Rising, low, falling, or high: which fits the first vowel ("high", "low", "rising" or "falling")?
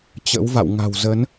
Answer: rising